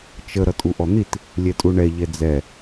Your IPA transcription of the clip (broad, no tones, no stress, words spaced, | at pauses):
t͡ʃə ɾʌtʼuʔɔn̪it | lʲɛtʼuɳɛ ʎɛd͡zɛ